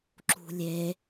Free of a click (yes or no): no